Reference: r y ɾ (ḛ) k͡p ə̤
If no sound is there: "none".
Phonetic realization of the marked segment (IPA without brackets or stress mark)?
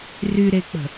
e